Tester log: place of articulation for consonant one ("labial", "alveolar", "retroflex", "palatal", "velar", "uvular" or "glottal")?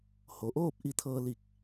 glottal